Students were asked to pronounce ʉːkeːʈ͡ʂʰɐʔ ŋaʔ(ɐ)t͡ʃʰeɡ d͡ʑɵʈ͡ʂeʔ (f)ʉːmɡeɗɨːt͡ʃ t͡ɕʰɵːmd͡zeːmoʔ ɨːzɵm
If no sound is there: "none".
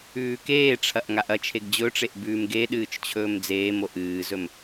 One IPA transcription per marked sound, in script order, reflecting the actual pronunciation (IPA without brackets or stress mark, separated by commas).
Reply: ɐ, b